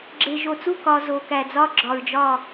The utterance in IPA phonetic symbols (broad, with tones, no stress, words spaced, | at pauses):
ɡ͡ǁe˨ʒo˨t͡su˦˨kɒ˨ zo˨kæ˨d͡zɒ˦ ɡ͡ǁɒ˨ɹd͡ʒɒ˦˨